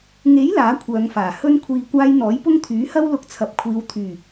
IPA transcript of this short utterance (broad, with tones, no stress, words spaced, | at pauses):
ŋe˨˥j laː˨˥kʷʰœː˨˧ŋfaː˨˩ hɵ˧nkʷʰiː˨kʷaː˧j n̪ɔː˨˥jpʊ˥ŋt̪ʰyː˨˥hɐ˥w lʊ˧k̚t͡sʰɐ˨p̚kʷʰiː˨˧w t̪ʰyː˨˩